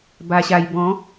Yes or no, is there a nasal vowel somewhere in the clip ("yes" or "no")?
yes